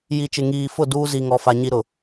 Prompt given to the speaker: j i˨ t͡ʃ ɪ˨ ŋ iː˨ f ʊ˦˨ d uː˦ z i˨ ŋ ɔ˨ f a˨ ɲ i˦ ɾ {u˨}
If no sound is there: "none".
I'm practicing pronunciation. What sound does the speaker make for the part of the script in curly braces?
ʊ˨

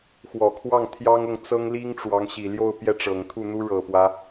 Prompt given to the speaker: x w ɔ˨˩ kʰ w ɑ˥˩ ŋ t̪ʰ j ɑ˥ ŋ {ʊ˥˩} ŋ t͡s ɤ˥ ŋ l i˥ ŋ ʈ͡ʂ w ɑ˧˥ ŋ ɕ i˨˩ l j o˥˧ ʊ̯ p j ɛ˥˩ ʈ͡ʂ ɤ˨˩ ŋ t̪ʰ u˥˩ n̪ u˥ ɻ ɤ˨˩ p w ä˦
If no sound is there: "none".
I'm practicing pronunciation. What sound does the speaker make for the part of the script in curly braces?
ʊ˥˩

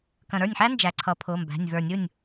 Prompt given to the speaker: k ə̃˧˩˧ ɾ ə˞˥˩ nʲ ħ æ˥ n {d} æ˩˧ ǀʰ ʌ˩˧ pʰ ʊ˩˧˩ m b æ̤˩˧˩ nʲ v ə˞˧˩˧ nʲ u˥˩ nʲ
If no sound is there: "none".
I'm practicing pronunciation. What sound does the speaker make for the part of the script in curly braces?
d͡ʒ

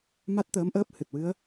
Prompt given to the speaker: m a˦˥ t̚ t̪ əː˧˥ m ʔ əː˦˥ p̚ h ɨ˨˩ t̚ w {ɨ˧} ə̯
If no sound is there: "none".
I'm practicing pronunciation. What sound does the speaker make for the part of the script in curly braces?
ɨ˧˥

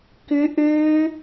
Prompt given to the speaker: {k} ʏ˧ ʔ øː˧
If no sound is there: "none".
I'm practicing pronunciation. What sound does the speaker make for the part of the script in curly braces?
k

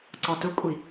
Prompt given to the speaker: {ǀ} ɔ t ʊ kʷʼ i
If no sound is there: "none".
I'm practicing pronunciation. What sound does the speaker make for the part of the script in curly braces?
ǀ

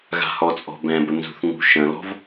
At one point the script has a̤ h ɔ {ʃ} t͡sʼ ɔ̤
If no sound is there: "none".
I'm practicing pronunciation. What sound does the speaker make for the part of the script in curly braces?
none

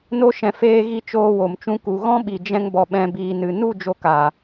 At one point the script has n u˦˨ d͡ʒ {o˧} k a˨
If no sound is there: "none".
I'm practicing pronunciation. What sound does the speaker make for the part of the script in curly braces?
o˧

